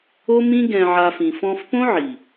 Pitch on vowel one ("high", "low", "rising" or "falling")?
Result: high